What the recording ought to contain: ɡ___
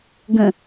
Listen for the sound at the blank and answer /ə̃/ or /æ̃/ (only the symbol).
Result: ə̃